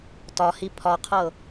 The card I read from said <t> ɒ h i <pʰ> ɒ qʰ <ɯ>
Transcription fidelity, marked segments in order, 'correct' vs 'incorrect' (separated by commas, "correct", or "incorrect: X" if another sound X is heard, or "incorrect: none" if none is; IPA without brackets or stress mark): correct, correct, incorrect: ɤ